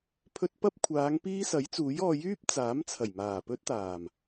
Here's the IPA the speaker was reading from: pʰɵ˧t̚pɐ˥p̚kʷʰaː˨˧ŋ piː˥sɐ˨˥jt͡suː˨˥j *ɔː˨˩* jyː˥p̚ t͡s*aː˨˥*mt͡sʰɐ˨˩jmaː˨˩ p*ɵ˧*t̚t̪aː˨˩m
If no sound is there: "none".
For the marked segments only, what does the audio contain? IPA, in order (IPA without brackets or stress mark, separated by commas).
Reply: ɔː˧, aː˨˥, ɵ˥